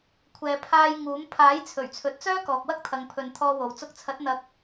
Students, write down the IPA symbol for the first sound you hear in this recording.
kʷʰ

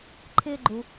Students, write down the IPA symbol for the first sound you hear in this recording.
ǃʰ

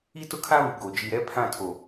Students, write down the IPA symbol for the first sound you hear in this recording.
i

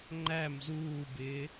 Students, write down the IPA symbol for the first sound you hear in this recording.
ŋ͡ǃ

